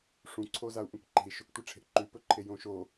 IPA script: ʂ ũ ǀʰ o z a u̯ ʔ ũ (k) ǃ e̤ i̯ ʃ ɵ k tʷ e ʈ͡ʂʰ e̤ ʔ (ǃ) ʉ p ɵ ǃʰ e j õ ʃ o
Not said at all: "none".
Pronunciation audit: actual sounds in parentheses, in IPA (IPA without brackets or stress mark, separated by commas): k, ǃ